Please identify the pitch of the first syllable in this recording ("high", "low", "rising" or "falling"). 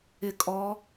low